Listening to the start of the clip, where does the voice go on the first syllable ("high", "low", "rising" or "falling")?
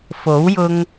rising